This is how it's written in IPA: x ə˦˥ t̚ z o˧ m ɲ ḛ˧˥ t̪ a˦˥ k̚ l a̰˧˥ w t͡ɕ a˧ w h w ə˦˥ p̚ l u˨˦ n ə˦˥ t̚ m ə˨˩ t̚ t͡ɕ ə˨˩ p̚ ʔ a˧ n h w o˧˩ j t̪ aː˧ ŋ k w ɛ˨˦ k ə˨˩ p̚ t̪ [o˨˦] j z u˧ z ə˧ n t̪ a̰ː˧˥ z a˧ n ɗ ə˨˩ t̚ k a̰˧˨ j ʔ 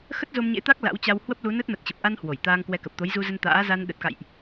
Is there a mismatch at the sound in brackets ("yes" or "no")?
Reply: no